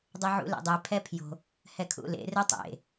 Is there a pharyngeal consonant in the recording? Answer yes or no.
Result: yes